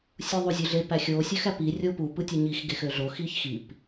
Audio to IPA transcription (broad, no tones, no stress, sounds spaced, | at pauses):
sʲ u ðˤ u zʲ ø ɮ e p æ xʲ o sʲ ø x æ p i rʲ o p u p ɯ tʲ ø ɲ i x ɡ e x ø ɮ o x i ç x i p